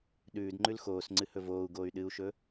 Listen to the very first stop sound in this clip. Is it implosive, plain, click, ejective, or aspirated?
implosive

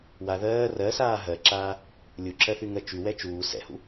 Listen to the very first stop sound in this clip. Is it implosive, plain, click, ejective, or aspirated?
click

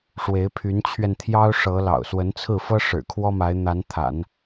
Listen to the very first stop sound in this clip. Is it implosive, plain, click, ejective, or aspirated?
aspirated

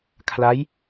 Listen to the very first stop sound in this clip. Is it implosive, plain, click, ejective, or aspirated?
aspirated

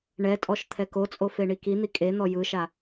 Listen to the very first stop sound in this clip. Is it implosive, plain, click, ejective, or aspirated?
ejective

